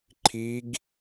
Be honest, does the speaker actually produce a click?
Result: yes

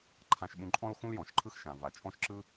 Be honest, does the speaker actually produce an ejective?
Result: yes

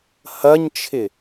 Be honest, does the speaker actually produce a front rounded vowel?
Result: no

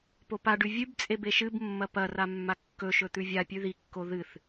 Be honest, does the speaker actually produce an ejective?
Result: yes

